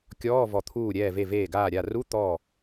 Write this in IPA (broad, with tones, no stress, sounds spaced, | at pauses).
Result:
kʲ ɔː˧˥˧ v ɔ˧˩ t̪ʰ uː˧˩ ɾʲ ɛː˧˩ v e˧˩ v eː˧˩ ɡ aː˧˩ ɾʲ a˧˩ r u˧˥˧ t̪ ɔː˧˩